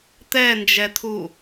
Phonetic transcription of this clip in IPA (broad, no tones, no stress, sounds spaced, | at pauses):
t̪ ɛ n d͡ʒ ɛ t̪ʰ u